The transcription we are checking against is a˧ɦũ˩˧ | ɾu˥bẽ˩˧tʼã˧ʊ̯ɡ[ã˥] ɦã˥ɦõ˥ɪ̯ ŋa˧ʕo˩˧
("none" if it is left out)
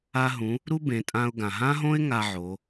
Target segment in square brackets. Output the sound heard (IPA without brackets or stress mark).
ã˩